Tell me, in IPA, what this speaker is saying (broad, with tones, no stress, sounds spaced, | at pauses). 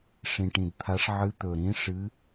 ʂ ĩ˨˩ ʈ ĩ˨˩ d t̪ʰ a˧˥ ʂ ʕ ɨ˧˥ t̪ ɵ˨˩ ɾ ĩ˧˥ ʂ ɨ˧˥